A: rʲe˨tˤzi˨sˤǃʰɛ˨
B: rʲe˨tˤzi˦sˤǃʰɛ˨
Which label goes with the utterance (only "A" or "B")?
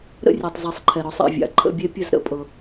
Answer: A